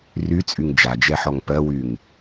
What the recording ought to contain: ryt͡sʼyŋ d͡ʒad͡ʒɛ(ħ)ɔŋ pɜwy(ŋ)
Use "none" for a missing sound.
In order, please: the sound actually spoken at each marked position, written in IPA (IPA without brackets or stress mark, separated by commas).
ħ, ŋ